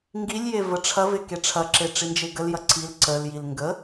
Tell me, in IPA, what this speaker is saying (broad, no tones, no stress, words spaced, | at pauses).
ŋɡilʲje vəʈ͡ʂʰɐve keʈ͡ʂʰɐǁe ʈ͡ʂind͡ʒeɡəljɐ ǀil ǀəljil ŋɡə